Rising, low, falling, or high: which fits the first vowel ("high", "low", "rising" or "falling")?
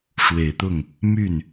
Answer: low